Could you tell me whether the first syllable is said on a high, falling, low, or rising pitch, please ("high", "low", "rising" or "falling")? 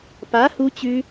rising